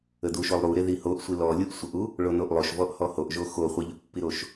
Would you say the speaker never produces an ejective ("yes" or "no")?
yes